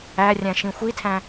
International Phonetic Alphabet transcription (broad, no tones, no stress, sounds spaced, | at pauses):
æ rʲ æ̃ ʃ ĩ xʷ i tʰ æ̃